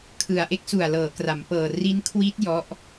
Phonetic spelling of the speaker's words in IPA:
kʰ ɯ˨˩ a̯ ʔ e˦˥ k̚ s u˨˩ a̯ l ɤː˩˦ k r a˩˦ m p ɤː˨˩ r i˦˥ n kʰ w i˦˥ t̚ j ɔ˦˥ ʔ

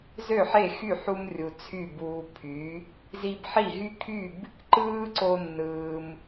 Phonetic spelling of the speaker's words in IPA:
z ø˥˩ ħ e˥˩ x y˥˩ ħ u˧ m rʲ u˩ t͡sʰ y˥˩ b uː˧ pʰ y˩˥ | z i˧ b ħ i˥˩ ɦ y˥ kʰ y˥˩ b | ǃ ɯː˥ ǀ o˧ nː ɯː˩ m

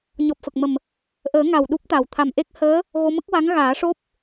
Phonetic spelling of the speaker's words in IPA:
ɲ ɔ˨˩ p̚ f ə˨˩ k̚ m ə˨˩ m | ʔ əː˨˩˦ ŋ a˨˩ w ɗ u˦˥ p̚ t̪ a˨˩ w t̪ʰ a˨˩ m ʔ e˦˥ k̚ h əː˧˥ | ɣ o˧ m ə˦˥ k̚ w a˧˥ ŋ ɣ aː˨˩˦ ʂ o˦˥ p̚

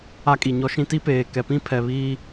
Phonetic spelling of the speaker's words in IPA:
a˦ kʼ i˨ ɲ ɔ˦ ʃ ĩ˦ t i˦ p eː˨ k ɛ˨ p ĩ˦˨ pʰ ɛ˨ β iː˦

